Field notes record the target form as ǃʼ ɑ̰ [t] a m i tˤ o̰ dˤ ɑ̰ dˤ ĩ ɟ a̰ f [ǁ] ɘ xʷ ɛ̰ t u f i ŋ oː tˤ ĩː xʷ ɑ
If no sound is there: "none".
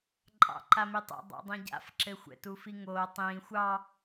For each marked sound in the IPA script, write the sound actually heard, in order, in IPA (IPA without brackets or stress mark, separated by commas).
ǃ, ǁ